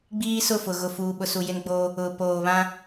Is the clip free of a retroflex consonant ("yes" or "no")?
yes